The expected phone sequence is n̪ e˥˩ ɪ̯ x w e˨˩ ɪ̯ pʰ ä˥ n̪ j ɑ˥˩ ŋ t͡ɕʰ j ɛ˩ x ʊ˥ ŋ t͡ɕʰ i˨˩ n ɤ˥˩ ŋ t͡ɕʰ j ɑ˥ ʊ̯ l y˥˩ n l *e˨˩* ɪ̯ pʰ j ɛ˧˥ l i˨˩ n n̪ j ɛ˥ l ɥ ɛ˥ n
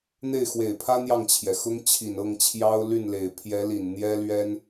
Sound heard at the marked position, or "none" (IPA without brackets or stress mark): e˨˩